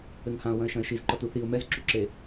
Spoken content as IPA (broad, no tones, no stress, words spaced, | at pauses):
ɘŋhãʊ̯ wɐ̃ɪ̯ʃɐ̃ɪ̯ʃizǃɔt uθiʊ̯ mɛzǁuǁe